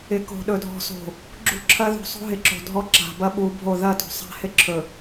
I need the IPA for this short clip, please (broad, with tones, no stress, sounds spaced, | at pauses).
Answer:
ɪ˨ k o̤˨ ɗ ɵ˨ dʱ ɔ̤˨ s o̤˨ | ɡ͡ǁ ṳ˦ ǁʰ ɐ˦ ð ṳ˨ sˤ o̤˦ ɦ ɪ˨ ǁ o̤˨ dʱ ɔ˦ ǁ a̤˨ b ɐ˦ ɓ u˨˦ bʱ o˦˨ ð ɐ˦˨ t o̤˨ sˤ a̤˦ h ɪ˦ ǁʰ ɵ˨